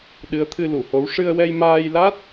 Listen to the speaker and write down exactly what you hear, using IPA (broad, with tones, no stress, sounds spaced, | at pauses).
ɗ ɨ˧˥ ə̯ t̪ʰ ɨ˧ l u˨˩˨ h o˧˥ w ʂ ɨ˧ ə̯ w ɛ˧ j m aː˧ j l a˦˥ t̚